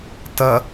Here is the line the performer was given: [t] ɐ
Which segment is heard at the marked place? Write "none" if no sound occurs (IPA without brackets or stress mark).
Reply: t